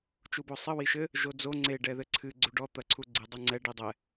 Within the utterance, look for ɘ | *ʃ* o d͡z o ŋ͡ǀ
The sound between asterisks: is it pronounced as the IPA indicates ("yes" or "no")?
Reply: no